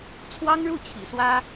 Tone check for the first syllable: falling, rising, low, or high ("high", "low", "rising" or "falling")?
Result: high